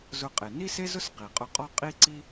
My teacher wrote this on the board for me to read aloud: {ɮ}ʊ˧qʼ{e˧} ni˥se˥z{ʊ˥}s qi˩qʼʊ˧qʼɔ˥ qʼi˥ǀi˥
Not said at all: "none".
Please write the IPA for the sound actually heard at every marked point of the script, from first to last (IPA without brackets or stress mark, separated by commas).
z, e˩, ʊ˥